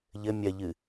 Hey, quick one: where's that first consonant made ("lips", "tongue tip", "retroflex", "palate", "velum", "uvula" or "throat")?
palate